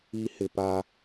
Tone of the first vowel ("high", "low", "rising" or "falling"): high